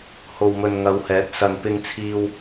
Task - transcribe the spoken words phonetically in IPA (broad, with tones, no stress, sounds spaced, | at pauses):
h o˨ w m ɵ˨ n ŋ ɐ˨˧ w h ɛː˨˥ t̚ s ɐ˨ n p ɪ˧ ŋ t͡sʰ iː˧ w